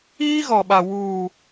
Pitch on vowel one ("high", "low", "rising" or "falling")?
high